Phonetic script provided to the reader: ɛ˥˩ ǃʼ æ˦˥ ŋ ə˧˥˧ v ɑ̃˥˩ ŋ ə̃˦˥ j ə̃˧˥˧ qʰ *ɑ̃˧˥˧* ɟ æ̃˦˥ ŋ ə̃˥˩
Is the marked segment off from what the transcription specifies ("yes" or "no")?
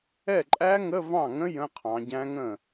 yes